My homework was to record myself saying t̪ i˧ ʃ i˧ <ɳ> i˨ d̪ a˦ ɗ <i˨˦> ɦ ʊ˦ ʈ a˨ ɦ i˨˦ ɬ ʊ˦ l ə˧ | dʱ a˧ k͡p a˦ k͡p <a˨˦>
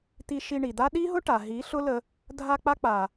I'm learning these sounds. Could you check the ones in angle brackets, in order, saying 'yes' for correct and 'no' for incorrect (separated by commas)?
yes, no, no